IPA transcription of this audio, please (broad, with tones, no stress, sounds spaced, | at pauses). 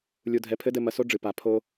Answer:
lʲ u˩ dʱ ɛ˩˥ pʰ ɘ˧˥ d ɘ˧ m ɐ˩˥ s o˧˥ ɖ͡ʐ ɨ˩ p a˩ pʰ o˧